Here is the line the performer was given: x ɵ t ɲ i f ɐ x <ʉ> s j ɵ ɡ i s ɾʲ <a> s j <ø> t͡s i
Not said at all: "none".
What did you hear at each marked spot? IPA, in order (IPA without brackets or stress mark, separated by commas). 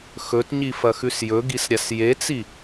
ʉ, a, e